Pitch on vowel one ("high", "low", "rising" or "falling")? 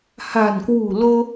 low